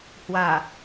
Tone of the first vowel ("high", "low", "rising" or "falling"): low